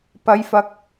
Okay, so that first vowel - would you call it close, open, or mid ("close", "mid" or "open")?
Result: open